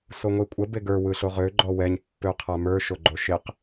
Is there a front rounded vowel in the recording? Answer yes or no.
yes